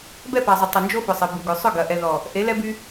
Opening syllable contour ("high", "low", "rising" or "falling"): falling